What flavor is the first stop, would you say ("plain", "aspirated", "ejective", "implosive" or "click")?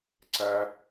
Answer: click